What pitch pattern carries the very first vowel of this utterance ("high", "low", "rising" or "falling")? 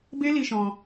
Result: high